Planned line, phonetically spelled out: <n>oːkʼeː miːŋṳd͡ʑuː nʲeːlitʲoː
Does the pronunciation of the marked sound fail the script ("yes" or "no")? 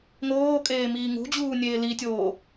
yes